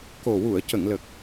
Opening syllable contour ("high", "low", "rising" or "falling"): low